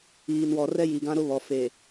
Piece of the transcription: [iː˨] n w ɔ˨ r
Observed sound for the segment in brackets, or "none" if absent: iː˨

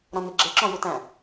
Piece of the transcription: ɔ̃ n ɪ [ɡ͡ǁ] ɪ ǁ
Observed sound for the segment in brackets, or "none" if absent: ɡ͡ǁ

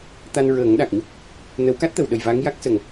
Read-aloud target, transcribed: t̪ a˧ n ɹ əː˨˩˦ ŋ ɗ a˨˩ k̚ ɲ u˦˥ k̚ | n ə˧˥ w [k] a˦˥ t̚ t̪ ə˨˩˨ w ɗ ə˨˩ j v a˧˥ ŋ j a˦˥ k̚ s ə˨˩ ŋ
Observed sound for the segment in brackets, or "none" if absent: k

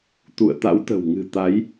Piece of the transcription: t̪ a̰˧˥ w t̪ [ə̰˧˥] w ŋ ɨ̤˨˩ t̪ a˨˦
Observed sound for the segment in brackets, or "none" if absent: ə̤˨˩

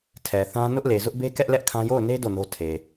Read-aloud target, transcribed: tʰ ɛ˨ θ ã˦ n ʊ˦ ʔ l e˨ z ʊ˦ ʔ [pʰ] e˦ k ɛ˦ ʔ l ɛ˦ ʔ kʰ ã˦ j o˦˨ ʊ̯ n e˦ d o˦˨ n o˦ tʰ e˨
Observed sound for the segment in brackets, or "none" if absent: b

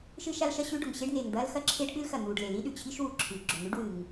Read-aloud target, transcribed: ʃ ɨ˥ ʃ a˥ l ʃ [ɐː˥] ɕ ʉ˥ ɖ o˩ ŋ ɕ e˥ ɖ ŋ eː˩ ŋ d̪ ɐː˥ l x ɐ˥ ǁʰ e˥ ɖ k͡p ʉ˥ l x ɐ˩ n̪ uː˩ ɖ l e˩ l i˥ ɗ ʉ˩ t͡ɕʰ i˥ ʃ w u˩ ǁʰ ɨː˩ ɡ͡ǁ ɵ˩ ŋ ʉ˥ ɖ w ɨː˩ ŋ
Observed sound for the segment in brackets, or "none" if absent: ɐ˥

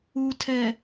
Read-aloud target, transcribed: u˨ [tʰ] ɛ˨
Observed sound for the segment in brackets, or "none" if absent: tʰ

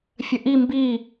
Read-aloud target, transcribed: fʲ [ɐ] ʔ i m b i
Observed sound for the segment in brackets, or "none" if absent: ɐ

